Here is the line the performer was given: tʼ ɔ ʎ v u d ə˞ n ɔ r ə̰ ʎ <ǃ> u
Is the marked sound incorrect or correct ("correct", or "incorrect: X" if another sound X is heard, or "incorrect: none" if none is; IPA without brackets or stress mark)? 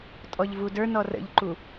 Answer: correct